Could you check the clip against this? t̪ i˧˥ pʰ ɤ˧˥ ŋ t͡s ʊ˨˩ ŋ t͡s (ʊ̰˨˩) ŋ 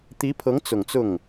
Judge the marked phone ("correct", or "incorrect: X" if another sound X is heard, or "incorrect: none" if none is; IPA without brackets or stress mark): incorrect: ʊ˥˩